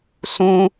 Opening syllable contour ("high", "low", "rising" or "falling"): high